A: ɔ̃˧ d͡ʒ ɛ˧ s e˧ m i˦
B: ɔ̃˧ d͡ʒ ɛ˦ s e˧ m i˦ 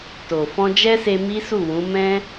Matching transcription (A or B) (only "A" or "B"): B